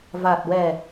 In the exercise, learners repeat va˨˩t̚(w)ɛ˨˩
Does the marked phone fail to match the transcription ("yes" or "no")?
no